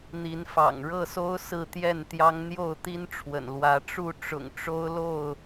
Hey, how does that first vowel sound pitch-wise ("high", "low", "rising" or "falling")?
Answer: rising